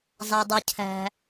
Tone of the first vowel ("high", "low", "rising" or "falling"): low